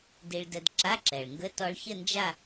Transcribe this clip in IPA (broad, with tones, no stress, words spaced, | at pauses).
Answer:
di˧ɭdə˧d ǁa˧˥˧ǁɛ˩ɭŋɡə˧˥˧ tɔ˧ɭçə˥˨nd͡ʒa˥˨